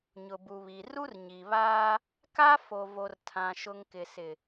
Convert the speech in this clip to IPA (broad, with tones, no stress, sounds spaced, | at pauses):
ɲ ʊ˨ b u˨ β i˨ r u˦ r ɲ i˨ β aː˦ | k a˦ f o˨ v o˨ r tʰ ã˨ ʃ ʊ˨ ŋ k ɪ˨ s ɪ˨